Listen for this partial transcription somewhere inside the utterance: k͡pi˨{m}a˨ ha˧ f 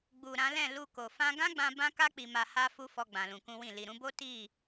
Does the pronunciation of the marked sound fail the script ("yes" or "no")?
no